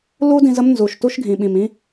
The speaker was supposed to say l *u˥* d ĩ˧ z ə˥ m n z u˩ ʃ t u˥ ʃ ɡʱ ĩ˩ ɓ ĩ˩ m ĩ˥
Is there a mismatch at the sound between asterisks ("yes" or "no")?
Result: no